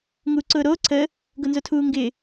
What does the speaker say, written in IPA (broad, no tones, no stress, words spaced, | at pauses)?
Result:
ŋuːǀʊːɾoː ǀʰəː | ɡʊnzotʰuːŋɡɪː